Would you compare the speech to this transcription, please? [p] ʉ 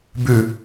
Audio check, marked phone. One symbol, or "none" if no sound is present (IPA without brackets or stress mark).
b